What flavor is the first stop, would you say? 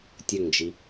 plain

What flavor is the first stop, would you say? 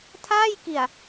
aspirated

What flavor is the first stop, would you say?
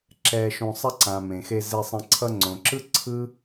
click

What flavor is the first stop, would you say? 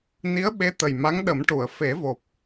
implosive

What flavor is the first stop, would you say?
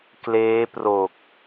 plain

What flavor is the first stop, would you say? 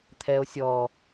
aspirated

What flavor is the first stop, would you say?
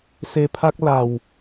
aspirated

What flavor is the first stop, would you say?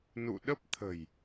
implosive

